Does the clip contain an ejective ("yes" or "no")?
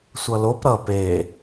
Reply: no